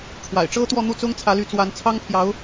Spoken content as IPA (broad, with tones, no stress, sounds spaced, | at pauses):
ʈ͡ʂʰ w a̰˨˩ ɪ̯ ʈ͡ʂ ɤ˥ t̪ w ɔ˥˧ n̪ u˥˩ t͡s ʊ˥ ŋ t͡sʰ ä˧˥ l y˧˥ t͡s w a˧˥ n t͡sʰ ɑ˥ ŋ pʰ j ɑ˧˥ ʊ̯